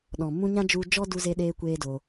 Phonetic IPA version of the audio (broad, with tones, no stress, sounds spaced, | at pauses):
ɗ ɔ̃˨ m ũ˧ ɲ ã˦ d͡ʒ u˧ d͡ʒ ɔ˦ d u˧ z e˧ ɗ eː˧ kʷ eː˦ d o˧